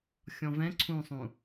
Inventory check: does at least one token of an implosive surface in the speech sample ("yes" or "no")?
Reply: no